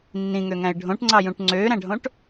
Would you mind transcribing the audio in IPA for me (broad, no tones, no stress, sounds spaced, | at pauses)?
nː ĩ ŋ ø ŋ æ̃ ɪ̯ ɖʱ õ ʈ ŋ͡ǀ ɑ j ũ ʈ ŋ͡ǀ øː ɾ æ̃ ɖʱ õ ʈ